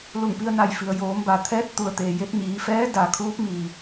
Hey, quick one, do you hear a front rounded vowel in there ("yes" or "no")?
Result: no